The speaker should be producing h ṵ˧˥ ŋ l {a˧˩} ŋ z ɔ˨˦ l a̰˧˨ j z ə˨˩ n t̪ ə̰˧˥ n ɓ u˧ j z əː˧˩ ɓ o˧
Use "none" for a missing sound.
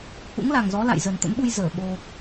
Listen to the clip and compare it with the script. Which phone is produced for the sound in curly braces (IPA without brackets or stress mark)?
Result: a˨˩